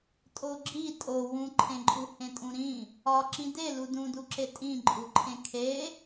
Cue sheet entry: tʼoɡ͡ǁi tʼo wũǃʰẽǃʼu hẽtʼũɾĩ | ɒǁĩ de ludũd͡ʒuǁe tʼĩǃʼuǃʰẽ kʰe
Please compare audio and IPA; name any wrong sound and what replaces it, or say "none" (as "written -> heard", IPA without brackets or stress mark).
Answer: d͡ʒ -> d